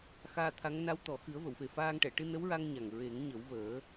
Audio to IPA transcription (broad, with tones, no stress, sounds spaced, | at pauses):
x aː˧ t̪ʰ a˧˥ ŋ n a˧˥ w t̪ ɔ˨˩ x ɨ˨˩˦ ə̯ v ə˨˩˨ w f e˨˩ f aː˧ ŋ ʈ ɛ˨˩˨ ʈ ɨ˧ n ə˧˥ w ɹ a˧ ŋ ɲ a˨˩ ŋ ɹ e˨˩˦ ŋ ɲ ə˨˩˦ w v əː˨˩˦